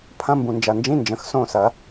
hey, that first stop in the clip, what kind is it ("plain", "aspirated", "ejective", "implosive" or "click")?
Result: aspirated